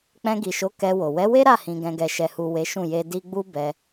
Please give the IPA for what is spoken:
k͡p ɛ̃˧ ɡ i˨ ʃ o˨˦ k ɛ˧ w o˨ w ɛ˨˦ w e˦ ɾ a˦˨ h ĩ˧ ɡ ɛ̃˧ ɡ ɛ˧ ʃ ɛ˨ h u˨ w e˨˦ ʃ ũ˦˨ j e˧ d i˧ ɡ͡b u˦ b ɛ˧

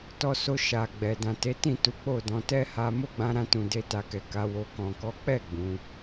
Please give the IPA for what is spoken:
t ɔ˧ s o˧ ʃ a˨ ɡ͡b ɛ˨ d ã˨ t e˨˦ t ĩ˦˨ t u˨˦ k͡p o˦˨ d ɔ̃˨˦ t ɛ˦ h a˧ m o˦ ɡ͡b ã˧ ɾ ã˧ t ũ˨ d e˧ t a˨ k ɛ˨ k a˨˦ w o˧ k ɔ̃˨ k ɔ˨˦ k͡p ɛ˦˨ ɡ͡b ũ˨˦

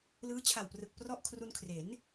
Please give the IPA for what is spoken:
l ɯː˦˥ t͡ɕʰ a˨˩ w p r ɯ˨˩ k̚ p r ɔ˥˩ ʔ kʰ r u˧ n kʰ r e˩˦ n

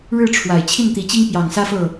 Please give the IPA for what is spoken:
ɻ ɻ̩˥˨ ʈ͡ʂʰ w a˨˩ ɪ̯ t͡ɕʰ i˥˨ n t̪ i˨˦ t͡ɕ i˦ ŋ p j ɑ˨˩ ŋ s ä˦ f ɤ˥˨

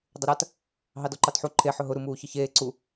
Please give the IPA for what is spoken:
dˤ ʊ ɾ a t | ɦ ɑ d ɔ ǃ ɑ t ħ u ǃʰ e ħ ʊ ɦ ʊ ɾ u m uː ç ə ç eː ǀ u

